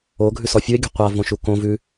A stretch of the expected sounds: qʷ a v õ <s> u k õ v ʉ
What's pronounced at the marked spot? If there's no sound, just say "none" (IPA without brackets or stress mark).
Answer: ʃ